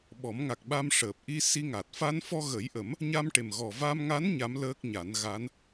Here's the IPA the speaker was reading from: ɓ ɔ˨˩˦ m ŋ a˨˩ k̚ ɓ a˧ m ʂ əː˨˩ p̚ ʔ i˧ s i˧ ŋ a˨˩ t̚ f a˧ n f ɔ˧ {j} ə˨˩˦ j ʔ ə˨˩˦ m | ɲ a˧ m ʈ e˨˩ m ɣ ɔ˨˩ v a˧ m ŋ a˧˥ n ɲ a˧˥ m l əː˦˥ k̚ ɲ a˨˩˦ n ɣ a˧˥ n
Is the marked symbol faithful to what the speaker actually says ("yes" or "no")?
no